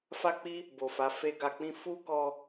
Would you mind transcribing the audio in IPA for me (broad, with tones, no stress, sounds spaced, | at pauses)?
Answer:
f a˦ k͡p i˦ | b o˨ f a˨˦ f e˦ ɡ a˧ k͡p ĩ˦ f u˦ k ɔ˧